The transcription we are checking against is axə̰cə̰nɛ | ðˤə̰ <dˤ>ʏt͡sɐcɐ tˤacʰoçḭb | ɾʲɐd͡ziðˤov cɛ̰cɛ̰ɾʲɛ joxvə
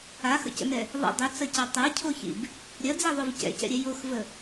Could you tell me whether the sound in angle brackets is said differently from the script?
no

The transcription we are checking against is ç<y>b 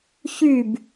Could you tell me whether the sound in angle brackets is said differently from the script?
no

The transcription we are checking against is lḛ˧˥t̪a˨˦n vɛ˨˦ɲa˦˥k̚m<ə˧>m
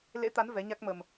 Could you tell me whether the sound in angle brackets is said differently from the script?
no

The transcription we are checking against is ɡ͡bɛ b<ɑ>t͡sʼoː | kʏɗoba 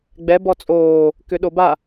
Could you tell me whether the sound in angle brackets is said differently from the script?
yes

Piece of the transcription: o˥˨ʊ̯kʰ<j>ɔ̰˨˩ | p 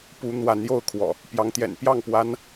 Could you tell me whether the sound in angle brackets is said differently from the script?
yes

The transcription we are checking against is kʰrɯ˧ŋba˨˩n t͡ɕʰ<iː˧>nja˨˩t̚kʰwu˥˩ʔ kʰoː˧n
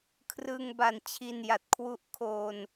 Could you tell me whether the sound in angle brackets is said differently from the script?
yes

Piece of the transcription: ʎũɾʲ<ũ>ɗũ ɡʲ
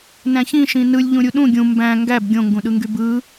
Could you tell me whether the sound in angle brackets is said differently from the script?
yes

